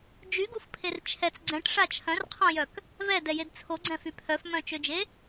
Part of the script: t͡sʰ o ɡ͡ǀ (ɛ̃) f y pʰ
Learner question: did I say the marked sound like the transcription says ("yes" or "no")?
yes